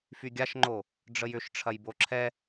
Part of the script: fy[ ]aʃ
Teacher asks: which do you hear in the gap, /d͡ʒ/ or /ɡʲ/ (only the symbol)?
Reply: ɡʲ